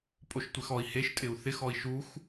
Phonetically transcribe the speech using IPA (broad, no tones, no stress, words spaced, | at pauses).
pʼoʃtʷexɔi̯ heʃtʼɪu̯ θɪxɔi̯ ʃux